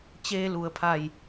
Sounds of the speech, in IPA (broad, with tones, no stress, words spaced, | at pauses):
t͡ɕeː˧lu˩˧ə̯pʰa˧˩j